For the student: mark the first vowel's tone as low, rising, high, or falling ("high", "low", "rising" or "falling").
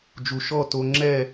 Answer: low